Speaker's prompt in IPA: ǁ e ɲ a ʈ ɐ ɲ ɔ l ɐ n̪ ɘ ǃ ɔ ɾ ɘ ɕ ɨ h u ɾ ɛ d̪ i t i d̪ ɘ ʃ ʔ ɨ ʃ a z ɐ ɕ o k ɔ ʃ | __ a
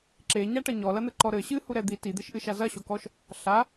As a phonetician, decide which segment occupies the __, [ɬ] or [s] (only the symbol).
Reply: ɬ